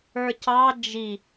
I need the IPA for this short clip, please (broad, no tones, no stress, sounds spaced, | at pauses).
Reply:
ə˞ c ɑ d͡ʒ i